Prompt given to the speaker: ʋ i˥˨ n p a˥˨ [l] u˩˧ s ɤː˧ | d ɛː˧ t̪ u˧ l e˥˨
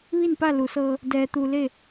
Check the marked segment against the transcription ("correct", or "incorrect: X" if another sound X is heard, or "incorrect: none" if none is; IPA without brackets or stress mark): correct